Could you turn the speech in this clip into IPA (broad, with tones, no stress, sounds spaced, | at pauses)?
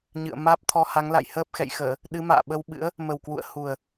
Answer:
ɲ ɨ̰˧˨ ə̯ m aː˦˥ p̚ t̪ʰ ɔ˧ h a˨˦ ŋ l a̰˧˨ j h əː˦˥ p̚ x ɛ̰˧˨ j x əː˧˩˨ | ɗ ɨ˨˦ m a̰ː˧˨ ɓ ə˧ w ɓ ɨ̰˧˥ ə̯ | m ə˨˩ w k w ṵ˧˨ ə̯ h u˨˩ ə̯